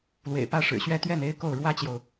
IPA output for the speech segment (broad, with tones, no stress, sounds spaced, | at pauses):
l w ḛ˨˩ ɪ̯ p ä˥˩ ʂ ɻ̩˨˩ ɕ ɥ ɛ˥ t̪ ɥ ɛ˥˩ n e˥ ɪ̯ k o˥˩ ʊ̯ ɻ w ä˥ t͡ɕ j o˨ ʊ̯